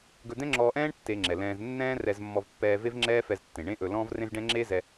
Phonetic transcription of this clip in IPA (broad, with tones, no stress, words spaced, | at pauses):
ɡɵ˧d̪ɛ̃˥ŋ͡ǁɔː˧ʔɛ̃ː˥ɳ tːe˧ŋ͡ǁɛ˩ lɛ̃ː˧z nːɛ̃ː˥rɛ˧z mːɔ˧vpːɛː˧ ve˥vŋ͡ǁɛː˥fɛ˧ztːẽ˩ ɳẽ˥ʔɵ˧ lɔ̃ː˥vrẽ˥zɖɛ̃˥ ŋ͡ǁeː˥zɛ˧